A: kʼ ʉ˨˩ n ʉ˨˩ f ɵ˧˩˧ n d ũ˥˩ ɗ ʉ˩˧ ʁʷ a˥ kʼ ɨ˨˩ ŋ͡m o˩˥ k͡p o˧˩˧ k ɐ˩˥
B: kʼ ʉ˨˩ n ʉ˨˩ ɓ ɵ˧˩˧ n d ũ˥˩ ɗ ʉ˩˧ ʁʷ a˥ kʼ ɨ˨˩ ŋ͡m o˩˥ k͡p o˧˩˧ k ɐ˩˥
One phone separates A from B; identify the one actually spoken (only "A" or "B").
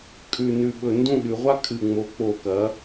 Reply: B